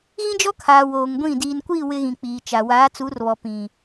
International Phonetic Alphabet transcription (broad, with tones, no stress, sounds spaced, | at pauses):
ɣ ĩ˦ d͡ʒ ɔ˦ kʰ aː˨ w oː˨ ŋ ɡʷ ĩ˦˨ d iː˨ n kʷ iː˦˨ w ɪ˦ ɣ ĩ˨ k͡p iː˨ t͡ʃ a˨ w aː˨˦ t͡s u˨˦ r β ɔ˨ p ĩ˨